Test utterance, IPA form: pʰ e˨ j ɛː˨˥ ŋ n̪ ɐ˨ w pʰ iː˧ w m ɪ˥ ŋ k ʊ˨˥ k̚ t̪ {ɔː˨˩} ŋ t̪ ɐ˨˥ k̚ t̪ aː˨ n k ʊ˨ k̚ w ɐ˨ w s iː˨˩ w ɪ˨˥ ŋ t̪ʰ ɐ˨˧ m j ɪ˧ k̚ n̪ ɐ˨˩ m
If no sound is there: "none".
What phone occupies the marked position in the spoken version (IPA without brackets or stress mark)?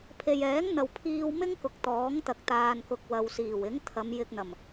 ɔː˨˥